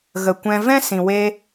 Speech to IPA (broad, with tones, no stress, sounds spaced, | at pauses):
ɣ ə˨ kʷ ɛ̃˧ v ɛ̃˦ s ĩ˨ w e˧